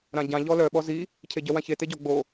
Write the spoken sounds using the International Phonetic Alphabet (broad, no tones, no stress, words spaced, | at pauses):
ɾãɟã ʎɔlœ ɓɔzi | cʰeɟœwãçe teɟɔ ɡ͡bo